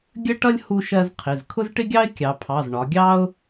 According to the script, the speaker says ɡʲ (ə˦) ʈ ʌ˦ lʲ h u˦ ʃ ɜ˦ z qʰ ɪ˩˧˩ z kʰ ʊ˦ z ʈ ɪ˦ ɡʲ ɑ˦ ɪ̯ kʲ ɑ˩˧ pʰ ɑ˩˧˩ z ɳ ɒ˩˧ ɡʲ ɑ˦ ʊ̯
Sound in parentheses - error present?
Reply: no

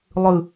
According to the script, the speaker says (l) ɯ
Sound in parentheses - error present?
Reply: yes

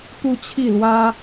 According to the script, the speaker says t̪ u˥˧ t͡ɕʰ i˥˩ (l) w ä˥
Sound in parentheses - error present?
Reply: no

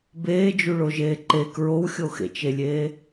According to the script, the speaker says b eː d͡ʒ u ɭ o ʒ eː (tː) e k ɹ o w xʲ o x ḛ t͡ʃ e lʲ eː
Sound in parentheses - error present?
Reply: yes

